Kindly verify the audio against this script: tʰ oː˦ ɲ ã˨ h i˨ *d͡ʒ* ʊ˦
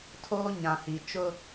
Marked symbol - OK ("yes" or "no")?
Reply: no